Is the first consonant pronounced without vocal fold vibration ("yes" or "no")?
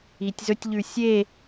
yes